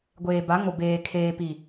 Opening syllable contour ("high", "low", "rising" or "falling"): low